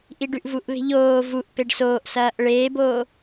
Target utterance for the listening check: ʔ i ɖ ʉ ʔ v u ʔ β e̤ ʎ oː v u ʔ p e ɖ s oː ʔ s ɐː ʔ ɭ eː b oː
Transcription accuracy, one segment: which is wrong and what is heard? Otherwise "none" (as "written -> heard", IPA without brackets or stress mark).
none